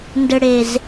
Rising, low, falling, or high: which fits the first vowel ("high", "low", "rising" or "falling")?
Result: low